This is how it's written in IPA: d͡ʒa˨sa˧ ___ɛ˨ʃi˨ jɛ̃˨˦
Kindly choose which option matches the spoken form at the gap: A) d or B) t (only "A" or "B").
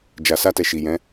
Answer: B